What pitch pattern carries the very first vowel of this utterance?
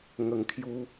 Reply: low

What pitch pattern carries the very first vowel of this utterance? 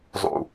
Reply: low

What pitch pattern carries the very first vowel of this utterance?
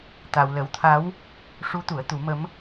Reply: low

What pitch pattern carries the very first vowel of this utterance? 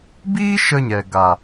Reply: high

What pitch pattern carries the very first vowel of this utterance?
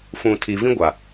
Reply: low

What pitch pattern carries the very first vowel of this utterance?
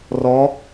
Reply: rising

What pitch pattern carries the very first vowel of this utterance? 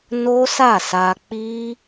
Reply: high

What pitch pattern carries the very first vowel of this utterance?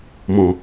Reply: low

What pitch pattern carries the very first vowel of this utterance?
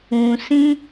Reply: low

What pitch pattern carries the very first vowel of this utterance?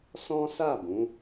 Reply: high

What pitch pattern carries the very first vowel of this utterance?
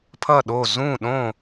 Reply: falling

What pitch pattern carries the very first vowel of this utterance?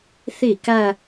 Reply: falling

